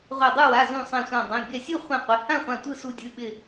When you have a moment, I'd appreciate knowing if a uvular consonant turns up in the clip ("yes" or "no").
yes